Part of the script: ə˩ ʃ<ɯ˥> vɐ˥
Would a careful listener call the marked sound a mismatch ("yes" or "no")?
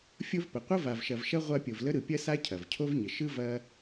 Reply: no